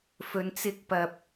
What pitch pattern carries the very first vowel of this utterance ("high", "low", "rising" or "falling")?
low